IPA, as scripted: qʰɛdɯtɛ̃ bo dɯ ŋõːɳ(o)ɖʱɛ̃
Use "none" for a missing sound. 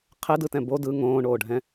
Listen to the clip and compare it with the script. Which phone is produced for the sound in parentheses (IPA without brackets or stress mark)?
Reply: oː